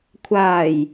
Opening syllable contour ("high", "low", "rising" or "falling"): low